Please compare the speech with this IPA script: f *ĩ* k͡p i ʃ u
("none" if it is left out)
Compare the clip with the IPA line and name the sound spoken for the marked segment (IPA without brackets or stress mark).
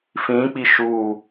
ĩ